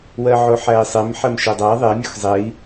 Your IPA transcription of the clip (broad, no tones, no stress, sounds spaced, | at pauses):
w ɜ ʕ o ħ æ i̯ sˤ e m ħ ɜ m ʃ e dˤ æ ðˤ e mʲ o x zˤ e i̯